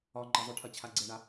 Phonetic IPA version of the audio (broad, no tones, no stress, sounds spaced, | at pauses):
ɒ ŋ͡ǃ ɐ zˤ ʏ ʈʰ ɐ t͡ɕʰ a ɡ͡ǀ ɛ ɳ a